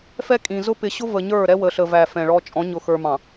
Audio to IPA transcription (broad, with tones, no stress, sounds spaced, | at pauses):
f ɛ˦ kʼ ĩ˨ z ʊ˦ p ɪ˨ ɕ ʊ˦ v ə˨ ɲ ə˞˦˨ ɾ ɛ˦ w ə˨ ɬ ə˨ v æ˨ f ɛ̃˨ ɭ ɔ˦ t͡ʃʼ ɔ̃˨˦ ɲ ʊ˨ x ə˞˨ m ɑ̃˨